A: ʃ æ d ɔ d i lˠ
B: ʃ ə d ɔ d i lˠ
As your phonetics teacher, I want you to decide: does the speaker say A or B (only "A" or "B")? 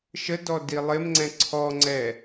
B